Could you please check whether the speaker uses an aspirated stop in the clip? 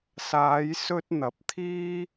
yes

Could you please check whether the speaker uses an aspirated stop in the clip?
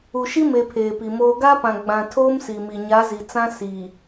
yes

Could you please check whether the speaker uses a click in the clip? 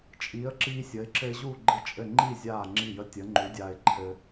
yes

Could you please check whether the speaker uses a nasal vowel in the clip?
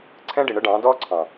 yes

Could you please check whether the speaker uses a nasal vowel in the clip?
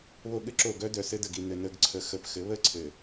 no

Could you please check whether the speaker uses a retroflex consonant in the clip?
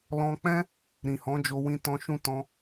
no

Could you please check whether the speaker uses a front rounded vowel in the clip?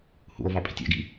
no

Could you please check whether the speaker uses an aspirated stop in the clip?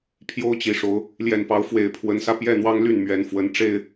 yes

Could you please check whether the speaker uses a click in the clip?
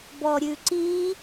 yes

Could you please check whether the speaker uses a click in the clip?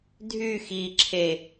yes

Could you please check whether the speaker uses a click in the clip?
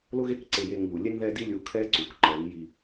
yes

